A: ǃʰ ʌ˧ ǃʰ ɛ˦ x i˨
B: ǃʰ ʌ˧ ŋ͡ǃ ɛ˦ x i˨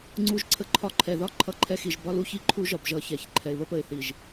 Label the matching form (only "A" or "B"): A